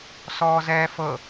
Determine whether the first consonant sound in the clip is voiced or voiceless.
voiceless